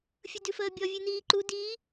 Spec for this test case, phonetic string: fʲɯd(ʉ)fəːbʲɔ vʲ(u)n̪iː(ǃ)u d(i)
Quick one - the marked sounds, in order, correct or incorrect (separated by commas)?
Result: correct, incorrect, correct, correct